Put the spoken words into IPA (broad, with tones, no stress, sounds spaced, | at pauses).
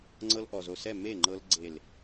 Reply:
ŋ͡ǀ ɤ˧ l ʔ ɔ˨ z o˨ s ɛ˦˨ m e˦˨ ŋ͡ǃ ɤ˧ l ɡ͡ǀ e˨ l